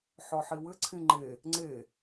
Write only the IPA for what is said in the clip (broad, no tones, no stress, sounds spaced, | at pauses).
ħ ɔ ħ i w ɘ ǀʰ ĩ ŋ͡ǃ e | ŋ͡ǀ e